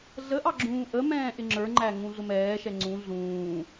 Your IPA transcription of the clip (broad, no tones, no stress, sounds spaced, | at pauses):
ɮ ə ʔ ɑ ɡ͡ǁ ũː ʔ ə m ɛ̃ː ʔ ɪ ŋ͡ǁ ə˞ ŋ͡ǃ æ ŋ ũ ɮ ʊ m ɛː ʃ ɛ ŋ͡ǀ ũ ɮ ũː